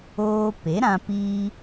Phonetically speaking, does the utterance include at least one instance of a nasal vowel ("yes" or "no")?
yes